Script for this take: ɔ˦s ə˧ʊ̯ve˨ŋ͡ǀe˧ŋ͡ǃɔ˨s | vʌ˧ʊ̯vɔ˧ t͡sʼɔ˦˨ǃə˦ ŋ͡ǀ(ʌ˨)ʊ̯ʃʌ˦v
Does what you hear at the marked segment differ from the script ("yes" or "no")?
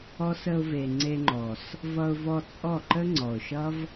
yes